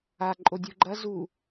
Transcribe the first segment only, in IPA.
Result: a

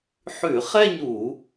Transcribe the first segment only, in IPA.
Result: ħ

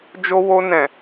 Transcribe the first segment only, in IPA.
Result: d͡ʒ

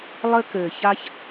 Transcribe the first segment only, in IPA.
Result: lˠ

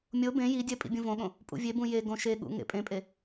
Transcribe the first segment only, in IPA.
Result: mʲ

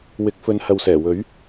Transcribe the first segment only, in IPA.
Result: w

